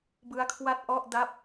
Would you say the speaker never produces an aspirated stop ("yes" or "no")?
no